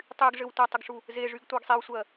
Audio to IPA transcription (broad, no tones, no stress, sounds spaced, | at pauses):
tˤ y ɡ ʐ ɘ w tʷ a tˤ ɘ ɡ ʂ u | z e ʐ y ɡ tʷ ɜ ɡ sˤ e w sʷ ɜ